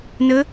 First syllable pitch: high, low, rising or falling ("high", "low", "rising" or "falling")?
rising